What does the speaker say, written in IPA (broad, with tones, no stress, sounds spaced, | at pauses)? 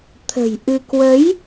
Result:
t̪ʰ ə̤˨˩ j ʔ ɨ˧ k w ə˨˦ j